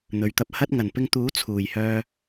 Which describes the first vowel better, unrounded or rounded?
rounded